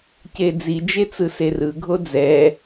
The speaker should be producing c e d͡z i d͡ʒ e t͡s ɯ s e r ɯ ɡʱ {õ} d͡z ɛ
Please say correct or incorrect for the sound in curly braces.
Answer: incorrect